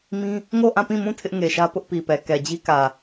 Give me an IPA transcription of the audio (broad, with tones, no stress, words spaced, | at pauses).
mĩ˦ | ŋo˦˨ʔã˦˨pĩ˦˨mũ˦˨ tʰɪ˦ʔŋe˨ʃä˦ pʊ˦ʔpi˨pɛ˨ kɛ˨d͡ʑi˦ kä˨